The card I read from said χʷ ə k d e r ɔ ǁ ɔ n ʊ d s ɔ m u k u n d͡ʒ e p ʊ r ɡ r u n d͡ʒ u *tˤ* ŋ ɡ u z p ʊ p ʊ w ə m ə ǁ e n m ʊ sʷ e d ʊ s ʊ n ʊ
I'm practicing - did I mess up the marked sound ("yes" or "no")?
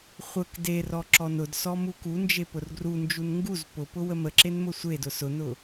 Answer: yes